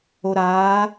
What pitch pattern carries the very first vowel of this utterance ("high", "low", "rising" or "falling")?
low